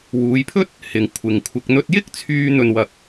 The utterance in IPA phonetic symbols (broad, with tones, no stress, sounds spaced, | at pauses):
w uː˨˧ j pʰ ɵ˥ t̚ | h ɪ˨ ŋ kʷʰ ɪ˨ ŋ kʷʰ ɪ˧ k̚ n̪ ɵ˧ t̚ j ɪ˥ k̚ t͡sʰ yː˧ n̪ ɵ˧ n w ɐ˧ k̚